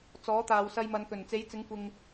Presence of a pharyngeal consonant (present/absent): absent